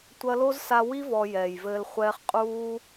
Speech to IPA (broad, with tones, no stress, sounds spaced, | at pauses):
tʷ ɐ˧ l o˦ z s a˧ w i˦ v ɔ˧ j ɛː˨ j v ɘː˧ l χʷ ɛː˦ χ qʼ uː˦